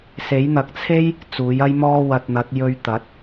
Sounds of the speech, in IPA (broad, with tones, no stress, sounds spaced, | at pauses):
s e˨˥ j n̪ ɐ˨ k̚ t͡sʰ e˥ j | t͡s uː˨˥ j ɐ˥ j m ɔː˥ w ɐ˧ t̚ n̪ ɐ˨˥ t̚ j ɵ˧ ɥ t̪ ɐ˨˥ t̚